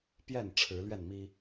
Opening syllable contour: falling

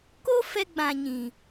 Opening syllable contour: high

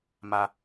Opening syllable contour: low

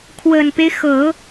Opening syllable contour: low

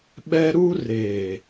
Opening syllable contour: high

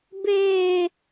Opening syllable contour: high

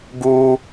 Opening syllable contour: high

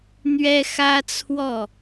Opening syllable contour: high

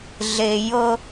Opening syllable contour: low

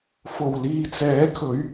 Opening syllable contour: low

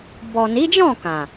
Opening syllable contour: low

